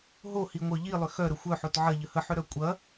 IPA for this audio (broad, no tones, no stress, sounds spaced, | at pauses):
ɦ o h i ŋʷ œ ʎ i lˠ ʏ x œ ɾ ə xʷ œ ħ o t ʕ ɐ ʎ ə h ə ħ ʏ ɾ œ kʷʼ ɐ